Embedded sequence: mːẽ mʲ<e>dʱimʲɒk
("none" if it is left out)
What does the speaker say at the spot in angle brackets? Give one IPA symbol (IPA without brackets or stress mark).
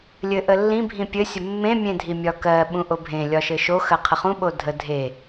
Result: ẽ